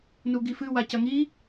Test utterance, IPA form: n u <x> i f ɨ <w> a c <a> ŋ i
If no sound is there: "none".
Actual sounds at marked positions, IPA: ɡ, w, ɐ

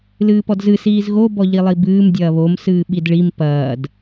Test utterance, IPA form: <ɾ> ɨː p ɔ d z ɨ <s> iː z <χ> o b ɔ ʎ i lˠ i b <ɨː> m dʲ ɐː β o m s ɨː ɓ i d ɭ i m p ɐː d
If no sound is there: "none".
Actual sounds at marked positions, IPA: l, s, ɣ, ɨː

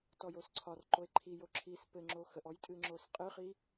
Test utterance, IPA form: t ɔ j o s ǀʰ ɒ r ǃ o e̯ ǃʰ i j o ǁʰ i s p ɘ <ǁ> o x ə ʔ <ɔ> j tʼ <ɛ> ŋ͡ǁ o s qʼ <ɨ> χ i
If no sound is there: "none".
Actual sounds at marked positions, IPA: ŋ͡ǁ, ɔ, ɨ, ɨ

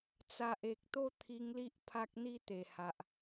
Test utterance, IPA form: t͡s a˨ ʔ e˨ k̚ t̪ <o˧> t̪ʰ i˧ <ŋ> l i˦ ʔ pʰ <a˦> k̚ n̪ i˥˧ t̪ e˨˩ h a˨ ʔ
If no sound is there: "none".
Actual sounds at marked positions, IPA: o˥˧, ŋ, a˦

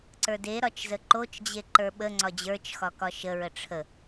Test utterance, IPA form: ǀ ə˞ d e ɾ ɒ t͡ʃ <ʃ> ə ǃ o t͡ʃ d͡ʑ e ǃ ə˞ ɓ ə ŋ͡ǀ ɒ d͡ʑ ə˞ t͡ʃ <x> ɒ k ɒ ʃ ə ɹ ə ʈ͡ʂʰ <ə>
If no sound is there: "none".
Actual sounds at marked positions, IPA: z, x, ə

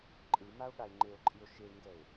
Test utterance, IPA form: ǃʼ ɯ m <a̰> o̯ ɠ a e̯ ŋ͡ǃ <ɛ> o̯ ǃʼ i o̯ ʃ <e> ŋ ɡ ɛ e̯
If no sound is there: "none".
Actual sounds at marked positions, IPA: a, e, e

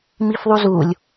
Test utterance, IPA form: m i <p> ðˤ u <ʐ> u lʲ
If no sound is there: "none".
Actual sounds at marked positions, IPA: f, z

